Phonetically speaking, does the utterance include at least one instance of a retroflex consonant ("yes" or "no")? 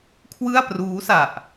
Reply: no